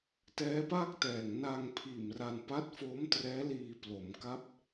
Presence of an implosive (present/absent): absent